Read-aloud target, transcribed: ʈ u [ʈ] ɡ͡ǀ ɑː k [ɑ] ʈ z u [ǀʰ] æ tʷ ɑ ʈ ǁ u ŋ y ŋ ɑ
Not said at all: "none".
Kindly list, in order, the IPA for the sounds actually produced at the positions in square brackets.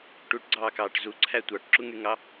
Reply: ʈ, ɑː, ǀʰ

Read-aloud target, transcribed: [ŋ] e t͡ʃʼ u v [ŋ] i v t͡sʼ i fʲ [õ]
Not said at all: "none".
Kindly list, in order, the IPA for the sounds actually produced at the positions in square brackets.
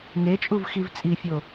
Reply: ŋ, x, o

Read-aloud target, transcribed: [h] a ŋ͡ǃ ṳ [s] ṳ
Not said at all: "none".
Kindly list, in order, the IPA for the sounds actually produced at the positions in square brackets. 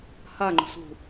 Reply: h, s

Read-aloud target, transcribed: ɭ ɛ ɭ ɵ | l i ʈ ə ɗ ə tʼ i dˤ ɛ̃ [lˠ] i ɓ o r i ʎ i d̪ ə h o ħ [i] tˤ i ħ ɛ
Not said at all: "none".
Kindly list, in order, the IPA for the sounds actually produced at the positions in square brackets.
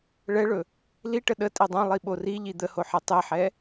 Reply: lˠ, i

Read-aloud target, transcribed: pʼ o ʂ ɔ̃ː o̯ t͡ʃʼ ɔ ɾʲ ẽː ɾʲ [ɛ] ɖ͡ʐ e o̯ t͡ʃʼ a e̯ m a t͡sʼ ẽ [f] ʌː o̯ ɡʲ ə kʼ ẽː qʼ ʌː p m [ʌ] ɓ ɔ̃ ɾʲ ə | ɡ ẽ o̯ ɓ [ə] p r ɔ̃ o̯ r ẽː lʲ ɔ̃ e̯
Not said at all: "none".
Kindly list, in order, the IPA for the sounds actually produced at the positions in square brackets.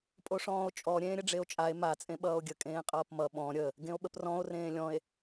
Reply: ə, ɓ, ʌ, ə

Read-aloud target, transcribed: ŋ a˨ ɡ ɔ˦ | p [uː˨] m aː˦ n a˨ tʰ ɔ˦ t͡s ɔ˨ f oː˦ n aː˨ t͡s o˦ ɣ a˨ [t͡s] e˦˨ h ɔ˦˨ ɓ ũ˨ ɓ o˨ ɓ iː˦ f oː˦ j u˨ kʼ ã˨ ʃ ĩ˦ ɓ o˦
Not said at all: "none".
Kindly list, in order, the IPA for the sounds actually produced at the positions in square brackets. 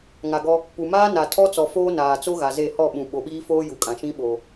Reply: u˨, z

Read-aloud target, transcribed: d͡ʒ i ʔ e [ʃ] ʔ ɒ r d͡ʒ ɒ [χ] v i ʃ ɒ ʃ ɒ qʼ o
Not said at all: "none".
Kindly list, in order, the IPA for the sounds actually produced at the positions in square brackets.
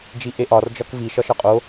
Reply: none, k

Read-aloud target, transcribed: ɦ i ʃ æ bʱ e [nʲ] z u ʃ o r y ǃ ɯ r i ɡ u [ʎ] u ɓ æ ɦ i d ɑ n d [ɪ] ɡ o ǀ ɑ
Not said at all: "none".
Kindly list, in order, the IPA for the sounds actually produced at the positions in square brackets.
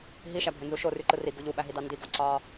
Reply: n, ʎ, i

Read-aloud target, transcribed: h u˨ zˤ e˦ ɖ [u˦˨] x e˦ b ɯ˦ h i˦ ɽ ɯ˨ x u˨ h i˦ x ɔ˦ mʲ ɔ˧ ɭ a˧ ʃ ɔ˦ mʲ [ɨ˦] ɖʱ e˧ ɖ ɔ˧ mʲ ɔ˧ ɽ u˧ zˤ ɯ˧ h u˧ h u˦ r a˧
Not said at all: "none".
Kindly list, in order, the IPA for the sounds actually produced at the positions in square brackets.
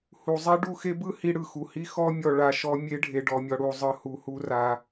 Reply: u˦˨, e˦

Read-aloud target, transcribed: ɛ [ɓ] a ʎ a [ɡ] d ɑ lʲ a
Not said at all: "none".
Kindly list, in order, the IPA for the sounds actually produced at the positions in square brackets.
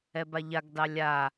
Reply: b, ɡ

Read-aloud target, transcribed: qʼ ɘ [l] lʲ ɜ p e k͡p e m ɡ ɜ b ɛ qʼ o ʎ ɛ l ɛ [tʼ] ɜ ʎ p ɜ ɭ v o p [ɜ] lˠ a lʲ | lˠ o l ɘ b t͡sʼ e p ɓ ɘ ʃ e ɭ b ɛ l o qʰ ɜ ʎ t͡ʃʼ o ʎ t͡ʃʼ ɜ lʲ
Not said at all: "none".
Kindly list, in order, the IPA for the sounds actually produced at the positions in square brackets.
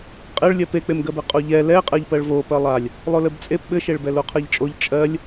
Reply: ɭ, qʼ, ɜ

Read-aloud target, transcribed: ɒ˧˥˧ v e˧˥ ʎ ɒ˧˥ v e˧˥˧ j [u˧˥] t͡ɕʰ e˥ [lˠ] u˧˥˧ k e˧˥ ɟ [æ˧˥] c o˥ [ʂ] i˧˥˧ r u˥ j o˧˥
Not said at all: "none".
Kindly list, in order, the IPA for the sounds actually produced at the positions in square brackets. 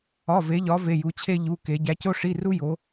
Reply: u˧˥, ʎ, æ˧˥, ʂ

